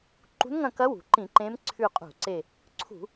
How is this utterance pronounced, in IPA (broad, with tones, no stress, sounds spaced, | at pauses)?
ǃ ṳ˧˥ n ŋ ɐ̃˦˨ k ɐ˧˥ w ṳ˩ ǃ ĩ˧˩˧ ǃ ẽ˧˥ m ǀʰ ʉ˦˨ qʼ ṳ˧˩˧ ǀ e˦˨ | ǀʰ ṳ˧˩˧